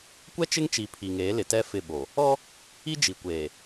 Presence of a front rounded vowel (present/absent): absent